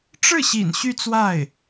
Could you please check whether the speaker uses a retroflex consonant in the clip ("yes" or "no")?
yes